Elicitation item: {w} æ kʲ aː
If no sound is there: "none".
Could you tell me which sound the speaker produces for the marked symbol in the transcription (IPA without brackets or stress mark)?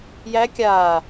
j